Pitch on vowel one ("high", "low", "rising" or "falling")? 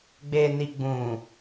low